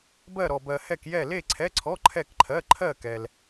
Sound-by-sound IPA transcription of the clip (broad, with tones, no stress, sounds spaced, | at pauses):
b ɜ˥˧ ɾ ɔ˧ b ɜ˧ h ɛ˥˧ k j ɛ˥˧ l e˥˧ ǀʰ ɛ˧˥˧ ǀʰ ɔ˧˥˧ ǃʰ ɛ˥˧ k ǃʰ ɜ˧˥˧ ǃʰ ɜ˥˧ k ɛ˧ l